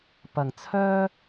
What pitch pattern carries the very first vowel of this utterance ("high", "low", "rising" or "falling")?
low